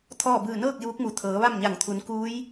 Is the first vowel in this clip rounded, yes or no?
yes